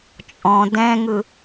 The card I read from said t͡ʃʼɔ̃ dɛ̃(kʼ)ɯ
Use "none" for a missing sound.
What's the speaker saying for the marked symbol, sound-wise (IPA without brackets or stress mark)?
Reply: ŋ